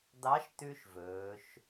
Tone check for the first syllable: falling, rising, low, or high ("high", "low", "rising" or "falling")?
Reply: rising